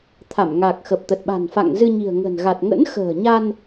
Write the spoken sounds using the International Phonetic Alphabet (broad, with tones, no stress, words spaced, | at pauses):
t̪ʰa˧˩mŋa˨˩k̚xə˨˩p̚ t̪ə˨˩t̚ɓa̤˨˩nfa̰˧˨ŋzɨ˧ ɲi̤˨˩ə̯ŋə̤˨˩nɣa˨˩t̚ ŋə̰˧˥nxə̤ː˨˩ɲa˧n